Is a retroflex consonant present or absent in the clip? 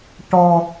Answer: present